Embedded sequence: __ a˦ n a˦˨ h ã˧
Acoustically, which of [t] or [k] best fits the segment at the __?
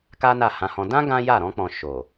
k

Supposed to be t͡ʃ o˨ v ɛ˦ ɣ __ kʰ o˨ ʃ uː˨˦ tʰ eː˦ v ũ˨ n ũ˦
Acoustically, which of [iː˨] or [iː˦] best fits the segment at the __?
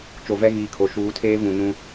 iː˨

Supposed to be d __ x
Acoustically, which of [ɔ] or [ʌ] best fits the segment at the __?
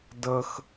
ʌ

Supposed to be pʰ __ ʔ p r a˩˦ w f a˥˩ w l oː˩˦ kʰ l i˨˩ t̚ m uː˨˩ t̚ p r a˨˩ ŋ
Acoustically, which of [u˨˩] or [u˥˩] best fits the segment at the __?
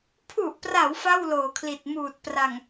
u˨˩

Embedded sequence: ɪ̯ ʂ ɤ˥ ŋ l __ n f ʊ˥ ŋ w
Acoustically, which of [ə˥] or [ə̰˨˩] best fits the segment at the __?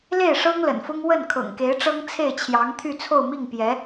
ə̰˨˩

